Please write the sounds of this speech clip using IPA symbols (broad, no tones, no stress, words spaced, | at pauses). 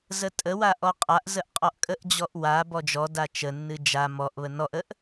zətʼəwa ʔɔqʼaʔzəʔ qʼɔʔkʼəʔd͡ʑɔʔ wa bɔd͡ʒɔda t͡ʃənːɨ d͡ʒa mɔʔβə nɔʔəʔ